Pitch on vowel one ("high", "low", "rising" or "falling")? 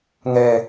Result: low